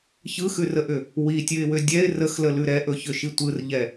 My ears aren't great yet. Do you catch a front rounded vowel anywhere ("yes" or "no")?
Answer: yes